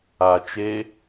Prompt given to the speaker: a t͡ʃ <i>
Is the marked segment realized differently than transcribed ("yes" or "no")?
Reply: yes